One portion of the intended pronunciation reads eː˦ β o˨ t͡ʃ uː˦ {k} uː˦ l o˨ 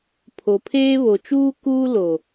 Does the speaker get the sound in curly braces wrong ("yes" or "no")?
no